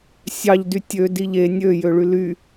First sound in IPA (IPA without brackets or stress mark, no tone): sʲ